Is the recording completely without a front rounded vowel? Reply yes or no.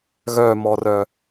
no